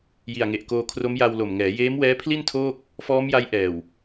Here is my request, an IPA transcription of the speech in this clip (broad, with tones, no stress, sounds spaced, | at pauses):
j i˨˩ a̯ ŋ e˨˩ ʔ k oː˧ kʰ r o˦˥ m j a˧ w l o˨˩ m ŋ ɛː˩˦ j eː˦˥ m w ɛː˦˥ pʰ l i˥˩ n tʰ oː˥˩ k̚ | f ɔː˦˥ m j a˦˥ j ʔ ɛː˨˩ w